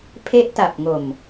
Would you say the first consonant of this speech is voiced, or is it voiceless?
voiceless